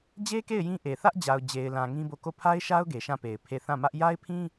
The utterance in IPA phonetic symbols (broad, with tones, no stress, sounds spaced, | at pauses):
d͡ʑ e˦ k e˦˨ ɪ̯ j ĩ˦ ʔ e˨ θ ä˦ ʔ d͡ʑ a˨ ʊ̯ d͡ʑ e˨ ɪ̯ l ã˨ ŋ ĩ˦ b o˦˨ k o˦˨ pʰ a˦ ɪ̯ ʃ a˦ ʊ̯ ɡ e˨ ʃ ã˦˨ p e˨ ɪ̯ pʰ e˦˨ θ ã˦˨ m ä˦ ʔ j a˦ ɪ̯ pʰ ĩ˦